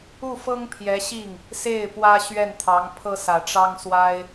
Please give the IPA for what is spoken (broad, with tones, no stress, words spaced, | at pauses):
u˥˩fɤ˥ŋ pʰjɛ˧˥ɕi˥˩ŋ | se˥˩ɪ̯ pwä˥ɕɥɛ˥˩nt̪ʰɑ˧˥ŋ pʰɤ˥sä˨˩ʈ͡ʂɑ˥ŋswa˥ɪ̯